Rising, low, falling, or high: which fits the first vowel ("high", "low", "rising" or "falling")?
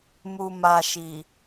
low